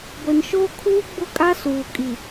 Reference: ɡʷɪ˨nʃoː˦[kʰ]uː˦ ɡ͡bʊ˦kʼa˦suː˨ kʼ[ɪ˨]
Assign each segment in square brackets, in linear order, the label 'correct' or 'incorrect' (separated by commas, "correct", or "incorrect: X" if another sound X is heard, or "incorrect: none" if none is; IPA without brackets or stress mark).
correct, incorrect: i˨